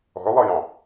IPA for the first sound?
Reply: ɔ̤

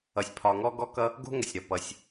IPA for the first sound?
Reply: ʌ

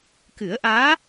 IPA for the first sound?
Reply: k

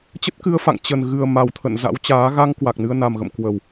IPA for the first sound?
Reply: t͡ɕ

